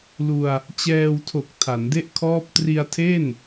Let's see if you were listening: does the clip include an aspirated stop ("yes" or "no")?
yes